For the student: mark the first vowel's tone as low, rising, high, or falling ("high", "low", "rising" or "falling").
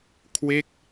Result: falling